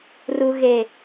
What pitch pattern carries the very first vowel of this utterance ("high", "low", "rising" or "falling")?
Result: low